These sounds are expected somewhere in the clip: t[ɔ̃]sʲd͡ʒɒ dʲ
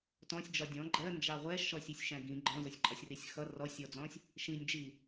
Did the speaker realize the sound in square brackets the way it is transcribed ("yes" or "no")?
yes